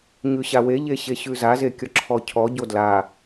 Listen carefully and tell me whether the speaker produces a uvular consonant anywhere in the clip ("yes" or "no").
no